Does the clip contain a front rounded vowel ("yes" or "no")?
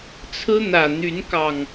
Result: yes